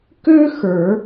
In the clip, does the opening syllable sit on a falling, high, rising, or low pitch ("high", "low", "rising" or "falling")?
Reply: high